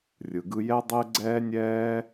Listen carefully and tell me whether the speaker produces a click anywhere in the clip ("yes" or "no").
yes